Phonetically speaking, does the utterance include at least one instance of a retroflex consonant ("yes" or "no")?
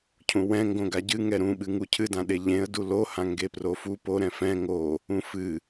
no